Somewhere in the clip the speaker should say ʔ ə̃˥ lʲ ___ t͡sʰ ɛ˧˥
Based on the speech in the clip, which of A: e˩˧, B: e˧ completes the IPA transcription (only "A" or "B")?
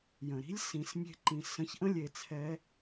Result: A